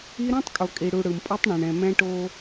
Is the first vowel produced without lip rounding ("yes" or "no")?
yes